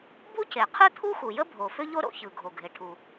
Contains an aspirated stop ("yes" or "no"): yes